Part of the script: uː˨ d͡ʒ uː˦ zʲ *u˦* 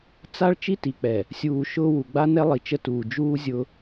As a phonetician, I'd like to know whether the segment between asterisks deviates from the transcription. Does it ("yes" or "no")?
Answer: yes